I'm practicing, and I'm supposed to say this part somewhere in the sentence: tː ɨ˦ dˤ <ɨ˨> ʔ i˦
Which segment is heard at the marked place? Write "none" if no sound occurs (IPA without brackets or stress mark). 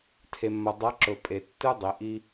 i˨